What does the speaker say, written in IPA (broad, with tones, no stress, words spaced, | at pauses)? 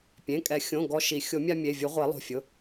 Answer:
pʲẽ˩˧˩kʼɛ˨˩˦xʲõ˩˧˩ ɡɔ˦ʃi˨˩˦ xʲo˨˩˦mʲa˦mʲe˩˧˩vʲu˨˩˦ ʁʷe˨˩˦lˠo̤˩˧˩fʲʊ˩˧˩